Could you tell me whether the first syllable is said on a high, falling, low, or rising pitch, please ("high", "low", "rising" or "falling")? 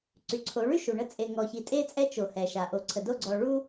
low